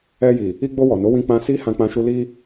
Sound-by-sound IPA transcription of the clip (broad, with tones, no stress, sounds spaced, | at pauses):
ɛ˧ j i˨ | i˧ ɡ͡b o˧ w ɔ˨ n o˨˦ w ĩ˧ k͡p ã˧ s i˦ h ã˧ k͡p ã˧ ʃ u˧ l i˧